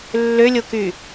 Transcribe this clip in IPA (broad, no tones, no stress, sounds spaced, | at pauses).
lː ø lʲ o k y